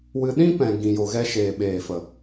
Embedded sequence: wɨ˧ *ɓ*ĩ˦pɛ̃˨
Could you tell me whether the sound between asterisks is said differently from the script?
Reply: yes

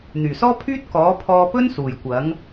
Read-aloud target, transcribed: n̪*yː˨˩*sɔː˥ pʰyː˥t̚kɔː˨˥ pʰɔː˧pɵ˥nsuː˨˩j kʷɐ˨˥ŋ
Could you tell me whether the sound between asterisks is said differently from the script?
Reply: no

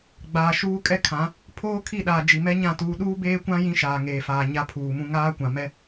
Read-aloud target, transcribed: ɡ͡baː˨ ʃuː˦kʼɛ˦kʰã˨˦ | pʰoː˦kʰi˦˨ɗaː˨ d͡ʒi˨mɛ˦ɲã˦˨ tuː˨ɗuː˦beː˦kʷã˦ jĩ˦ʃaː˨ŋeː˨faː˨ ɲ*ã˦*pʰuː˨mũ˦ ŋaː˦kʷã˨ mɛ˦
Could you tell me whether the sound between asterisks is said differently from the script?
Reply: yes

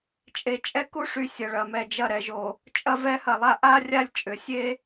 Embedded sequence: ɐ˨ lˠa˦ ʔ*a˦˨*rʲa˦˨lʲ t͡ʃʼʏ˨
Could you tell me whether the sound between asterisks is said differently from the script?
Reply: yes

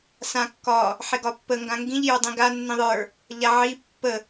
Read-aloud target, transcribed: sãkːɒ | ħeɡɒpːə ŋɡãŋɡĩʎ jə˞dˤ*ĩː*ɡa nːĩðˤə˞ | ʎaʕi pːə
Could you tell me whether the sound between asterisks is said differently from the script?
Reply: yes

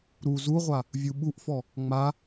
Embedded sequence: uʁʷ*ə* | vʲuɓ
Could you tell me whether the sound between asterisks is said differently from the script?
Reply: yes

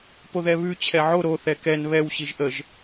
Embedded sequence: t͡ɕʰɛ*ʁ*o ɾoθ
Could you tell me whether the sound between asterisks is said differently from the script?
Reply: yes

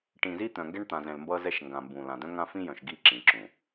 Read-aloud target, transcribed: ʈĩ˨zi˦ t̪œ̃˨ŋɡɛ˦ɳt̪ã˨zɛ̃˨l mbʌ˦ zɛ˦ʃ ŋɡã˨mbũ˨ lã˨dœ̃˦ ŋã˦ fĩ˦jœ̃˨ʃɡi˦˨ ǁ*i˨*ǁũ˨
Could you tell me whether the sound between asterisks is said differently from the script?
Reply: yes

